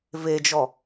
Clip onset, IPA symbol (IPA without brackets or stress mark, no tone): v